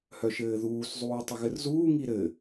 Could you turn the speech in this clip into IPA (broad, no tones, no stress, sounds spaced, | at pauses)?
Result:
h œ ʃ ɘː ð uː s zˤ uː tˤ ə ɣ ɘ r z uː ŋ i ɾ ɘ